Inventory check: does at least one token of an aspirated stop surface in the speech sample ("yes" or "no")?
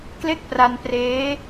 no